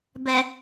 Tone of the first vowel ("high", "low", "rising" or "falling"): low